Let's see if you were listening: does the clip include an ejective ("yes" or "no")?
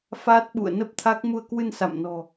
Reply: no